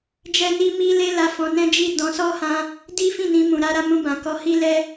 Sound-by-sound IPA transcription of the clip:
d͡ʒ ɛ˦ n i˦ m i˦ l e˦ l a˧ f ɔ̃˧ n ɛ̃˦ d͡ʒ i˦˨ d ɔ̃˧ s ɔ˦ h ã˦ | d i˦ f ĩ˦˨ n ĩ˧ m ũ˨ ɾ a˧ ɾ a˧ m ũ˧ b ã˨ k ɔ˧ h i˦ l ɛ˦

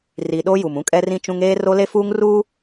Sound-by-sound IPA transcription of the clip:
r i˨ ɗ o˦ j u˨ m ũ˦ kʼ ɛ˦ r ĩ˦ t͡ʃ ũ˦ ŋ eː˦ r o˦ l e˦ f uː˦ ŋ r uː˦

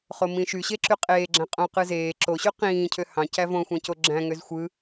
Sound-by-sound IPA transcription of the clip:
χ o m ĩ ʃ y ɕ e ǁ y qʼ eː ɡ͡ǁ æ̃ qʼ õ q ɯ z eː ǁ o ɕ y q ĩː cʰ ø h ɑ̃ c æ v õ xʷ æ̃ c o ɡ͡ǁ æ̃ ŋ ø z xʷ ɯ

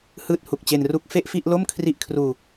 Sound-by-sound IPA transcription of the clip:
h ɯː˦˥ t̚ h u˨˩ k̚ t͡ɕ e˧ n r u˦˥ k̚ f e˥˩ ʔ f i˥˩ ʔ l o˥˩ m kʰ r i˦˥ ʔ kʰ r uː˧

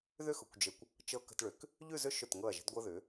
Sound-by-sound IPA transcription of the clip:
ð ʏ˥ x ʊ˩˧ kʷ d͡ʒ ə˧ kʷ | t͡ʃ ɤ˧ k ə̤˧ t ɭ ʏ˩˧ k | ʎ ʉ˥˧ z ʏ˥˧ ʃ ʊ˧˩ t ŋ ɤ˧˩ ɐ̯ ʒ ə̤˧ d ɡʷ ɤ˧ ð ʏ˩˧

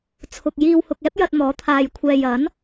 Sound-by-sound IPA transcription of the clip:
t͡sʰ ʊ˨ k̚ j iː˧ w h ʊ˧ k̚ ɛː˥ p̚ j ɐ˧ t̚ n̪ ɔː˨˥ t̪ʰ aː˨ j kʷʰ ɛː˨ j ɐ˨˥ n

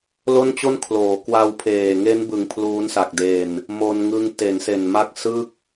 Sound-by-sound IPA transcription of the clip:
l o˥˩ n t͡ɕ o˥˩ n kʰ l oː˩˦ k w a˧ w pʰ eː˨˩ ŋ e˦˥ n b ɯ˩˦ ŋ pʰ l uː˦˥ n s a˨˩ k̚ d e˧ n | m o˧ n ŋ ɯ˦˥ ŋ t e˩˦ n s e˨˩ n m a˦˥ k̚ s ɯ˥˩ k̚

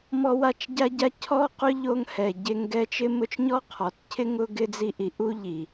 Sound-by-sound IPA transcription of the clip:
m ɔ˥ w a˥ t͡ʃ ɟ a˥ ɟ a˥ cʰ ɔ˥ q ʊ˥ ʎ o˦ ŋ h ɛ˨ ɟ e˦ ŋ ɡ ɛ˦ t͡ʃ ɪ˥ m ʊ˥ t͡ʃ ɲ ɔ˥ qʰ ɔ˩ t cʰ ɪ˥ ŋ ʊ˥ ɡ ɪ˦ d͡z i˦ ʔ i˨ ʔ u˥ ʎ i˩

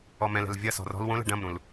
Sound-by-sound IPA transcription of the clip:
ɔ m ɛ̃ l ɛ̤ l vʲ ɐ s ɔ̤ r ɔ̤ l w õ l ɛ̤ ɖ ɐ̃ m ɾ ũ l

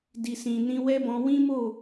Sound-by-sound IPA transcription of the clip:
d i˨ s ĩ˨ n ĩ˧ w ɛ˦ b ɔ̃˧ w ĩ˦ m o˦˨

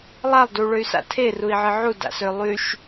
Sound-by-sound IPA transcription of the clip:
lˠ a lˠ d u ɭ ø y̯ s a̰ tʰ e r u i̯ ʕ ɨ ʕ u d a̰ s ø lˠ y ʃ

